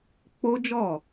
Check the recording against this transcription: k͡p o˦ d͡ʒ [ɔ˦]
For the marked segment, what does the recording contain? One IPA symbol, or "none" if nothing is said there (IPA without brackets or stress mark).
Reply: ɔ˦˨